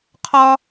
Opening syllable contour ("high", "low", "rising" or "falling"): high